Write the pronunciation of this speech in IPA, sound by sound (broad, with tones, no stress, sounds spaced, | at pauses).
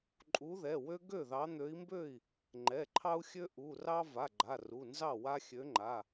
ǃʼ u˨˦ ð ɛ˩˧˩ w ø˦ ɡ ø˥˩ ð ɑ˨˦ n̪ ø˨˦ i̯ m b ø˥˩ i̯ | ŋ͡ǃ ɛ˩˧˩ ǃʰ ɑ˦ u̯ xʲ ø˦ ʔ u˩˧˩ r ɑ˦ v a˩˧˩ ɡ͡ǃ a˩˧˩ r u˩˧˩ n z ɑ˥˩ w a˦ xʲ ø˨˦ ŋ͡ǃ a˩˧˩